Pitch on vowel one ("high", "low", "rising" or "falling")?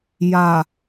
low